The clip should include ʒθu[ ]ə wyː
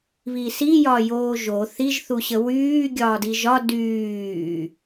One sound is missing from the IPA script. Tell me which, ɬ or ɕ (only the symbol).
ɕ